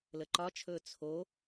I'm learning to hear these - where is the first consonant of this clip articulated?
tongue tip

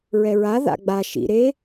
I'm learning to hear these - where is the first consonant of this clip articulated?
tongue tip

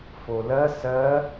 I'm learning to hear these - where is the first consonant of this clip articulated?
lips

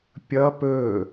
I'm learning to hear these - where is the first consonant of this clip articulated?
lips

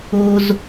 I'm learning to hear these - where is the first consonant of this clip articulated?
tongue tip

